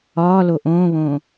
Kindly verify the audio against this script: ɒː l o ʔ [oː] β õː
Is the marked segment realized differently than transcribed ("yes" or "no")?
yes